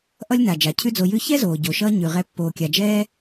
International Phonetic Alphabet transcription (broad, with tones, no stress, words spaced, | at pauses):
ʔʌ˥lʲ na˩d͡ʒa˩ cʰʉ˥d͡zo˧jʉ˥ çɛ˥zoː˩ɟo˩ʃʌː˧ ɲʉ˩ʁɛ˧ pːoː˩kʲa˩d͡ʒɛː˧